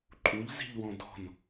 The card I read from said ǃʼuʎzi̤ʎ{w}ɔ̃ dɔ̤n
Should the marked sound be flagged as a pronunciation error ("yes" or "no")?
no